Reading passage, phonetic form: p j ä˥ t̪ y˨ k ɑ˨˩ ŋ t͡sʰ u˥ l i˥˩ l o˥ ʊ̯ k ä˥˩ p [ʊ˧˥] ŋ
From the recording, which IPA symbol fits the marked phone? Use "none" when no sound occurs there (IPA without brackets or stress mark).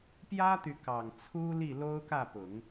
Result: ʊ˨˩˦